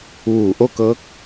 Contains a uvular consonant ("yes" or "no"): no